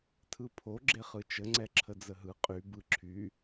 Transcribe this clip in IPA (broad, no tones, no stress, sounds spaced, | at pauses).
tʰ ɯ pʰ o ɡ͡ǁ e χ ɯ t͡ʃ ə ŋ͡ǀ ɛ ǁʰ ə d͡z ə ɦ ɯ qʼ y b ɯ ǁʰ y